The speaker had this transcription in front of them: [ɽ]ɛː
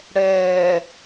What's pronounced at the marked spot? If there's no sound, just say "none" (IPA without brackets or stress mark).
ɽ